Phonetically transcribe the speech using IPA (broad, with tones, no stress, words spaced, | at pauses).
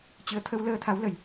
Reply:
t͡ɕɨ˨˦ə̯ t̪ʰə˧wləː˧t̪ʰa˨˦w lə˨˩j